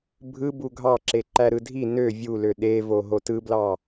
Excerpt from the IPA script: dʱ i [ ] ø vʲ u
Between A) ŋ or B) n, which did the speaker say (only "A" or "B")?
B